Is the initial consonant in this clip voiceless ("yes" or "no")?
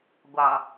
no